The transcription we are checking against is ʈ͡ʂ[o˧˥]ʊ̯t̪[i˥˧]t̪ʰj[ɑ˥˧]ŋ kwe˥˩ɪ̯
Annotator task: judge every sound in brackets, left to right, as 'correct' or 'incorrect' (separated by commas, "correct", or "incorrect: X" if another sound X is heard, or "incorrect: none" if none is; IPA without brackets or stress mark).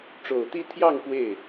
incorrect: o˨˩, correct, correct